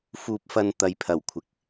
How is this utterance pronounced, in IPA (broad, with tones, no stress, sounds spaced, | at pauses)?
f uː˧ p̚ f ɐ˧ n t̪ ɐ˨ j pʰ ɐ˨˩ w kʷʰ ɪ˨ k̚